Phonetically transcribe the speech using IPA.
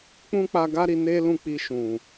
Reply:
k͡pũ˦k͡pa˧ɡa˦ɾi˧ ne˦lũ˦˨ k͡pi˧ʃũ˨

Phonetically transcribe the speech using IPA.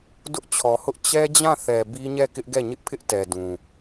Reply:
dʊ˦ʔt͡ɕʰɔ˨hʊ˦ʔ t͡ɕɛ˦d͡ʑã˦˨θɛ˨ bi˦ɲɛ˦˨ kɪ˦ʔɡɛ˦˨ ɲɪ˦ʔpʰɪ˦ʔtɛ˨ dũ˨

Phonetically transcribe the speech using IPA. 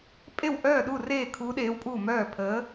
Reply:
pʼe˥˩wʔœː˥˩ɗu˥˩reː˥˩ kʰuː˧˥ɗeː˧˥wpʼuː˥˩ mœː˥˩pʰəː˧˥

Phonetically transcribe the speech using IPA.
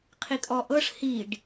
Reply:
qʰikʼɔʔɤʂ hiɖ

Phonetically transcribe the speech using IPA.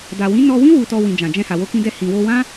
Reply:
da˨wĩ˨˦ nɔ˧wĩ˦ wu˧tɔ˧ wĩ˨ d͡ʒã˨d͡ʒɛ̃˧ha˨wo˧ kĩ˧dɛ˧ hĩ˨wo˧wã˦

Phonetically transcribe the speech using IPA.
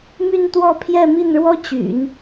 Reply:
my˥˧nt̪wɔ˥˧ pʰjɛ˥˧mi˥˩nɻwɔ˥ t͡ɕy̰˨˩˦n

